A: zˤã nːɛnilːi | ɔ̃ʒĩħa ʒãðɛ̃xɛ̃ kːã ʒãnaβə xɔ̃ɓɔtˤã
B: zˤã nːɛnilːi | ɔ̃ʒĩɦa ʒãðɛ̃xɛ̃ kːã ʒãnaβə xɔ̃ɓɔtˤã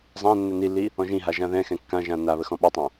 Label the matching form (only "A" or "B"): B